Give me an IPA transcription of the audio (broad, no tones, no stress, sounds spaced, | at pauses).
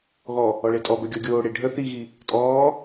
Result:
ɣ ɔ | ɔ ɭ e tʼ ɔ b œ ɡʲ ɔ ɡʲ oː ɽ e ɖʱ ə θ i ɣ i | tʼ ɔː